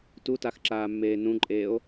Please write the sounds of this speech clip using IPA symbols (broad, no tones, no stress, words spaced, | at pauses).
tutaxǁaːmːeː nũǃʼeːo̯